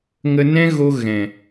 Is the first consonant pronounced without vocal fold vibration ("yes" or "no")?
no